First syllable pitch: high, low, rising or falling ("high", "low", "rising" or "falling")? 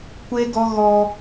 high